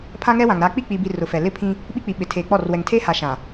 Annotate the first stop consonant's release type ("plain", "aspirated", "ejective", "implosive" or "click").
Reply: aspirated